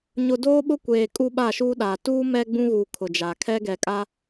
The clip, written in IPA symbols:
ɲʊ˨doː˦ɓʊ˦ kʷeː˨ kʼu˦ɓa˦˨ʃuː˦ɗaː˨ tuː˦mɛ˦ ɡ͡bũ˦ɣuː˨ kʰʊ˨d͡ʒa˨ kʰɛ˦ɡɛ˨kʼa˦

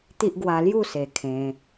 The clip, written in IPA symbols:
t̪i˦ʔ ɡwa˧lju˥˧se˨˩ kʰẽ˧

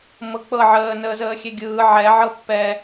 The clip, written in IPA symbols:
mɤk͡pɤ ʕəːnəːzəːxʲe ɡʲɯː ʕɛ ʕɤpːɛ

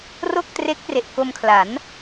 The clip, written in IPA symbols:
ro˥˩k̚tre˦˥k̚re˨˩ʔ ko˧mkʰla˩˦n

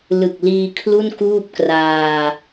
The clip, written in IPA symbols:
lɯ˨˩k̚liː˧ kʰlu˥˩nkuː˥˩p̚kraː˧

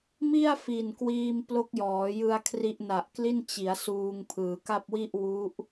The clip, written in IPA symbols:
mi˥˩a̯ fi˨˩nkwiː˧m plo˦˥k̚jɔː˩˦jɯ˧a̯ kʰri˦˥ʔna˨˩ʔkli˥˩n t͡ɕi˩˦a̯ suː˧ŋ pʰɯː˩˦ka˥˩p̚wi˥˩ʔ wu˦˥ʔ

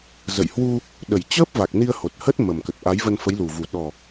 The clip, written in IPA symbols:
zə̰˧˨j hwu˧ | ɗə˧˩jt͡ɕəː˦˥p̚va˨˩k̚ ni˧ə̯ho˨˩t̚ hə˦˥t̚ mə˨˩m kə˨˩t̚ʔa˨˦jvə˧n fə˨˦jlu˨˩vu˨˩ ɗɔ˨˩

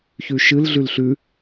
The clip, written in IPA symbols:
çʉʃɨl ɮʉlɬʉ

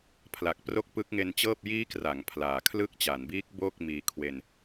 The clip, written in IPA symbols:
pʰla˨˩k̚pro˦˥k̚ pɯ˦˥k̚ŋe˧nt͡ɕɤː˥˩p̚ jiː˦˥kra˩˦ŋ pʰlaː˨˩kʰlɯ˦˥k̚t͡ɕa˩˦nbiː˦˥k̚ bo˥˩k̚ miː˧kʰwe˧n

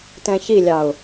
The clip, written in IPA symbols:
tɛ̃çilʲɑʊ̯

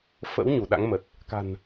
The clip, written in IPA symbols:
fə̰˧˥w ɲu˧˩ɗa̰˧˥ŋmə˨˩t̚ | ka̤˨˩n

